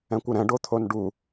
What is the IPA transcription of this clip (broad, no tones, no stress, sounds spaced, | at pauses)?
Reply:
ɛ̃ kʷ ɯ ɾ ɛ̃ ɖ o t̪ʰ o n ɖ u